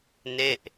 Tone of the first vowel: falling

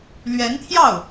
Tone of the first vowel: rising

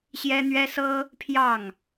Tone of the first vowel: high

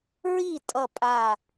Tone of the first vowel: falling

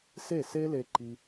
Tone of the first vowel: falling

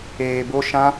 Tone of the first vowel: low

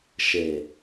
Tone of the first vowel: low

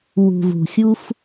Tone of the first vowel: low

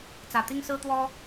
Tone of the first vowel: low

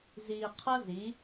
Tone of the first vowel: low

